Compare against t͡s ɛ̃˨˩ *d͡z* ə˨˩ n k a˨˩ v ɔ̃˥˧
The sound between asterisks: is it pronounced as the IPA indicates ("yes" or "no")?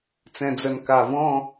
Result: yes